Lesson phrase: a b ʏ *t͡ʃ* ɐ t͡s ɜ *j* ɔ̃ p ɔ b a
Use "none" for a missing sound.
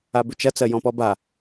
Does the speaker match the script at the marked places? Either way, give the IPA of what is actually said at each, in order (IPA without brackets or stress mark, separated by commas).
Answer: t͡ʃ, j